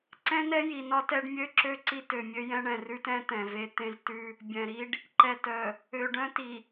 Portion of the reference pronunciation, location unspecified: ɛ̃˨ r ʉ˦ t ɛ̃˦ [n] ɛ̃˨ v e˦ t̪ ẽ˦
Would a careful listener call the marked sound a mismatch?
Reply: yes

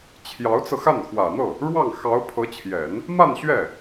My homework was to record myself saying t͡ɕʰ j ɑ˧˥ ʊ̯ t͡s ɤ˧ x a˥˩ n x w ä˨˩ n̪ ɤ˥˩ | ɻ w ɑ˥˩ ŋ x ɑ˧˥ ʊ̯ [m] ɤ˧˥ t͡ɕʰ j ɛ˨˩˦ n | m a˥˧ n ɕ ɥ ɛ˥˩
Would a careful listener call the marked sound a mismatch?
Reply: yes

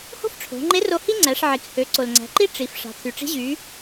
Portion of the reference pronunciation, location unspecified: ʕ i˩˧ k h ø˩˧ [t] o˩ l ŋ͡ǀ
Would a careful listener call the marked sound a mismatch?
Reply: yes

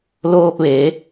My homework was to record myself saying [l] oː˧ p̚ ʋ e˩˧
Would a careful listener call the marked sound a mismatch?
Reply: no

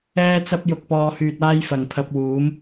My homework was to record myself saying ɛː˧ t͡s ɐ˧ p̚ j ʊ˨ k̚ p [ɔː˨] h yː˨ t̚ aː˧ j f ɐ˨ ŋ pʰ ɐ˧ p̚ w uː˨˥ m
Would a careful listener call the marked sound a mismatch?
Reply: no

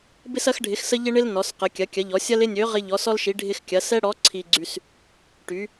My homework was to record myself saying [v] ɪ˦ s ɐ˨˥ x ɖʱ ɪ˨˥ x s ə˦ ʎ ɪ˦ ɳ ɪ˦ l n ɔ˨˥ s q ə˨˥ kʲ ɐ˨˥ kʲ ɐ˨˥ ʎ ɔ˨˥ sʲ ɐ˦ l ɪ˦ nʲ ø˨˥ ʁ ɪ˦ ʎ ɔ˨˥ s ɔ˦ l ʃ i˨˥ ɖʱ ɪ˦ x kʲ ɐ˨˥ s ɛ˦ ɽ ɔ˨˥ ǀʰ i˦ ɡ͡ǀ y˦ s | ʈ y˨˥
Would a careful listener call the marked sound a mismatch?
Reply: yes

